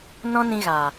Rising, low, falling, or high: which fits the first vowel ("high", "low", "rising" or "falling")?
high